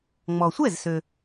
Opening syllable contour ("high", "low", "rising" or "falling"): low